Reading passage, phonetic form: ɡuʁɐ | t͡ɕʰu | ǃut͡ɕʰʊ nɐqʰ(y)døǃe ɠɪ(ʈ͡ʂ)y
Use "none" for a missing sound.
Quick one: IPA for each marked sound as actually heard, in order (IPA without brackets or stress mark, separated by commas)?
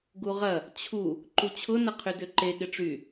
y, ʈ͡ʂ